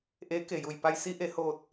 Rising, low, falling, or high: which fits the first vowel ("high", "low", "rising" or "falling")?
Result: rising